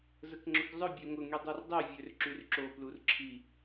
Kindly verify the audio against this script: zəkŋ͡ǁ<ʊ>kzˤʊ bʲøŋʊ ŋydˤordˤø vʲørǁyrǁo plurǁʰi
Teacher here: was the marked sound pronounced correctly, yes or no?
yes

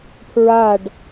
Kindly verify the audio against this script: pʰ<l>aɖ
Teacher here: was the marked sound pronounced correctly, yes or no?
no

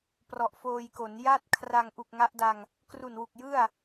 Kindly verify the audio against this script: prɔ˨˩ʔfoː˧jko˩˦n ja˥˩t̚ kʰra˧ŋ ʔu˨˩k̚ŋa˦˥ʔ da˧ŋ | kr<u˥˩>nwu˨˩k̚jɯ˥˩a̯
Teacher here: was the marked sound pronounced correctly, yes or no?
no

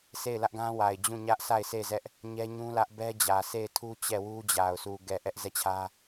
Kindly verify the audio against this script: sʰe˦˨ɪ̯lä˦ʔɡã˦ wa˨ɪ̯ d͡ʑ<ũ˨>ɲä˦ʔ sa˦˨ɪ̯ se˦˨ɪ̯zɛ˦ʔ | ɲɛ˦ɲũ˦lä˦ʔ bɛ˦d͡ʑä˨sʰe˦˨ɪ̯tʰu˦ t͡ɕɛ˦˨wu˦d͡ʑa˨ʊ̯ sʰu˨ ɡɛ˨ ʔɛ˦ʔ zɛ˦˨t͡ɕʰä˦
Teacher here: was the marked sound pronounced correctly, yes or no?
no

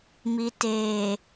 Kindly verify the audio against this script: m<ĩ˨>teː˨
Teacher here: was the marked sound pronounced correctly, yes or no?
no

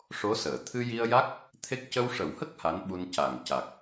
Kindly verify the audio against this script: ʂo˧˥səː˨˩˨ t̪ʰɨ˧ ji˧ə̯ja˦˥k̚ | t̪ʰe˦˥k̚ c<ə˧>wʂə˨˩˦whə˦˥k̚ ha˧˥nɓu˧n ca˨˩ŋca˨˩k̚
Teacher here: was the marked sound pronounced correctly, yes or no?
yes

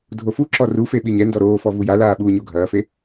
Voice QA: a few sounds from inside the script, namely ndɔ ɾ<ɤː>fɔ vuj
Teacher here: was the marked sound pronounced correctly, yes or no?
no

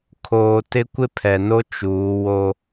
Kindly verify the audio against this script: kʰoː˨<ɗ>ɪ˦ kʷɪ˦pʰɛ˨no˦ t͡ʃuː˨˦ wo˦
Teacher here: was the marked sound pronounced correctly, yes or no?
no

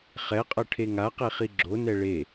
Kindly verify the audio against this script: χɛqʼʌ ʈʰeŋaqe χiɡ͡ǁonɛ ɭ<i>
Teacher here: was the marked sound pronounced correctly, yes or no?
no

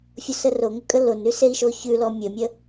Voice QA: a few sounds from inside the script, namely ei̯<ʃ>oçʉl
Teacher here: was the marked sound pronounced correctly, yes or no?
yes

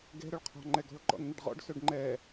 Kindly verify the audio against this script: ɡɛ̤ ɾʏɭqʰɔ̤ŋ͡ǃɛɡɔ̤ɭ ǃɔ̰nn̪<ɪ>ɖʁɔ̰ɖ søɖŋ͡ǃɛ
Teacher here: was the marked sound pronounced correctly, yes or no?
yes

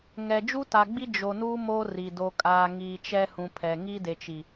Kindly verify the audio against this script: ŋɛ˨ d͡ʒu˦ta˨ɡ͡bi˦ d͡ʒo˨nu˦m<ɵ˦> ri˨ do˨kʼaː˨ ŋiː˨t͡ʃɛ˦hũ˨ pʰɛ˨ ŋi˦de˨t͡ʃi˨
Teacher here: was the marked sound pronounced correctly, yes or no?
no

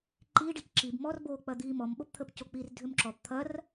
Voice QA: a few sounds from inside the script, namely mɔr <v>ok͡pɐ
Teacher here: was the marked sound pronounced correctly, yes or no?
no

